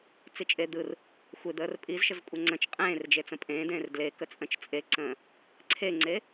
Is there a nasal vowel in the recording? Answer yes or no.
yes